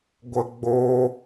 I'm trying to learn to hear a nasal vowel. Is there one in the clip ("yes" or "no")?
no